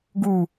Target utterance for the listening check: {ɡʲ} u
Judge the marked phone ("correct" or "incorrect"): incorrect